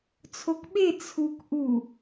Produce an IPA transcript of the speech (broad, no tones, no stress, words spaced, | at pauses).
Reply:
t͡sʰokɓe t͡sʰuk ʔu